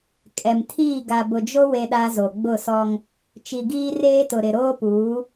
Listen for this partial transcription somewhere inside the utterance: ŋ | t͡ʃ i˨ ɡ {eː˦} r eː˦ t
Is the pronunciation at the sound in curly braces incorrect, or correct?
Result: incorrect